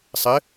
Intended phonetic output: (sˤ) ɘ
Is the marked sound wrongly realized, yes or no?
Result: no